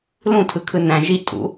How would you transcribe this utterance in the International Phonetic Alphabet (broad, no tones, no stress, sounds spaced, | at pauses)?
l ũ tʰ ɯ kʰ ɯ n æ̃ ʒ i ʔ tʼ ṵ